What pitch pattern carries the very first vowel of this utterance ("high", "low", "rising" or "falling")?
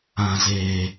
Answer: low